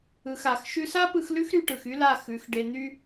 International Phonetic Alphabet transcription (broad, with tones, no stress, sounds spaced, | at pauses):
ɯ˧ x a˨˦ x ʃ ʉ˧ s a˦ p ɯ˧ x l ʉ˦ x ɾ y˧ ʈ ɯ˨ x y˦ l a˦˨ x ʉ˨˦ x ɖ e˧ n̪ y˧